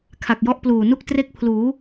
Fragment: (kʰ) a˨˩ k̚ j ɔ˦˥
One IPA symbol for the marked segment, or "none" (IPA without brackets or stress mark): kʰ